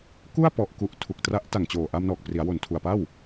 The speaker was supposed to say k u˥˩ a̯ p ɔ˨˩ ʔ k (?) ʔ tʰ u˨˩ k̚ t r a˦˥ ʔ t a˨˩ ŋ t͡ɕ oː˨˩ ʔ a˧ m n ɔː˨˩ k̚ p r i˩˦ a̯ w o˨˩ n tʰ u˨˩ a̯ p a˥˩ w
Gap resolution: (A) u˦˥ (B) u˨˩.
B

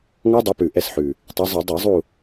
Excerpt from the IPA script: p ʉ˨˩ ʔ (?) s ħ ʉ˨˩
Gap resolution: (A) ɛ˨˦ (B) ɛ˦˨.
B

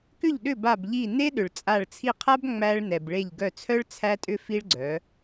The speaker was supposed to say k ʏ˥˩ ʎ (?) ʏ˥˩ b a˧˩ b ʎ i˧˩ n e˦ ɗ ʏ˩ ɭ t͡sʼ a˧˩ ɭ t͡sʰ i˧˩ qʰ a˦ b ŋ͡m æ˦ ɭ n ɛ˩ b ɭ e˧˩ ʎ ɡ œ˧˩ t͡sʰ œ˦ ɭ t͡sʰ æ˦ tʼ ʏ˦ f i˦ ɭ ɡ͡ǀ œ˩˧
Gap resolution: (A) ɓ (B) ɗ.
B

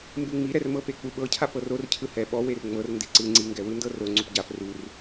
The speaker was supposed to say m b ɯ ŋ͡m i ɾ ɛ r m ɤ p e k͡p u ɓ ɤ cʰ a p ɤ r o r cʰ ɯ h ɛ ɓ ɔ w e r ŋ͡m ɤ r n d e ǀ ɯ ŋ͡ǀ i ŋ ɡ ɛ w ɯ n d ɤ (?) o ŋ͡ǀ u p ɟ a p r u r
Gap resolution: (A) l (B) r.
B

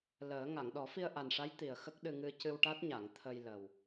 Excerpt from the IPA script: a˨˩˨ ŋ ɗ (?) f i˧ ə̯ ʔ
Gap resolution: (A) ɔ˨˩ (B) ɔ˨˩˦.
B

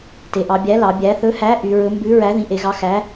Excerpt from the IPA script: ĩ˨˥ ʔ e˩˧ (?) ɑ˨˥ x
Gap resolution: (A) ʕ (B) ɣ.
B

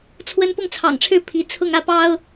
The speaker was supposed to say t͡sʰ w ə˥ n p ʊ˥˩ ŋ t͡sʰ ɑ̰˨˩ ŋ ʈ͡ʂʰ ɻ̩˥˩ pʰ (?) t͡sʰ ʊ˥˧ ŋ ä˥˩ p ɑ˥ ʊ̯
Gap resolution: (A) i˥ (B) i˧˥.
B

